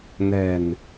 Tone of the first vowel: low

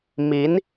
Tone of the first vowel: rising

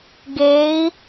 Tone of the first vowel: rising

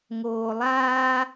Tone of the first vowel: low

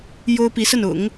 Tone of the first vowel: high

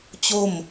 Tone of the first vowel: falling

